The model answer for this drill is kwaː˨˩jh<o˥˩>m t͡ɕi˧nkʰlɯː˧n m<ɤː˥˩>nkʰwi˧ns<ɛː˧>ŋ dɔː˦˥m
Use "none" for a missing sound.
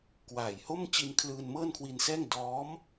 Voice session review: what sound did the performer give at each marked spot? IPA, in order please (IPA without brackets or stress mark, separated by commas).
o˥˩, ɤː˥˩, ɛː˥˩